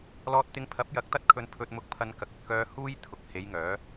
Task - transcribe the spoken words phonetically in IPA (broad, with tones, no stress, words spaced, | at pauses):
lɔː˧t̚t̪ɪ˧ŋpʰɐ˨˥p̚ jɐ˨˥k̚t̪ɐ˥t̚kʰɵ˧n pʰɵ˧t̚mʊ˧k̚pʰɐ˧nkɐ˨k̚ ɵ˨t̚kœː˥ huː˥j t̪ʰʊ˨k̚he˨˧j ŋœː˨˥